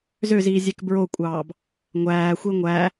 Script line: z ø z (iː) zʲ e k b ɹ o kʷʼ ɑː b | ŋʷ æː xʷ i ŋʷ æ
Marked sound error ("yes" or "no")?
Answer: no